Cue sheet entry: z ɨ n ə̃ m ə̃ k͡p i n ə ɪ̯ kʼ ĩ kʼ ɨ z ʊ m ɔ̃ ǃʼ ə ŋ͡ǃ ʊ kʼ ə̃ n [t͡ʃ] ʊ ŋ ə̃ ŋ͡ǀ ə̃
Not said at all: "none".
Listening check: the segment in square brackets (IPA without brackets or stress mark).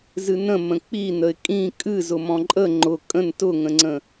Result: t